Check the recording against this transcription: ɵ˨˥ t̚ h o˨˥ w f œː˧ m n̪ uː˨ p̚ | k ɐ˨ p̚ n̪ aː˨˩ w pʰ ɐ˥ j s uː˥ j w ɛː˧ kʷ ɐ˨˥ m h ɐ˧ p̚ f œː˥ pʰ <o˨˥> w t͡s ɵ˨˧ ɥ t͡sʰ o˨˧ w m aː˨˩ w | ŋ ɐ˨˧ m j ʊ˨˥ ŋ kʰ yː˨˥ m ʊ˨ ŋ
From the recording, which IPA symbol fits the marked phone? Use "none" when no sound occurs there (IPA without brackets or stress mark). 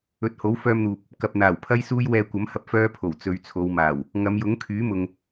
o˨˩